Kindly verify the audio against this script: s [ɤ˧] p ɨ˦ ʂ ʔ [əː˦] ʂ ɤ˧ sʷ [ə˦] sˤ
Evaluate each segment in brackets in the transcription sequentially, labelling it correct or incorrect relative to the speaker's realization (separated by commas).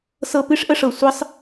incorrect, incorrect, correct